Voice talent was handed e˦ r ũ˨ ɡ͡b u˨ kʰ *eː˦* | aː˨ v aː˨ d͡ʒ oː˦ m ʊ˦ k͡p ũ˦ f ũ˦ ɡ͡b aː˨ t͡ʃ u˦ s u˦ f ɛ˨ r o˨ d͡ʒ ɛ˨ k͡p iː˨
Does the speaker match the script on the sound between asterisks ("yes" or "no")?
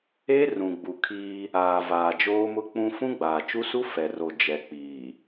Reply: no